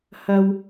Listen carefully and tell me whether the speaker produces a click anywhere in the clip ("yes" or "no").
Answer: no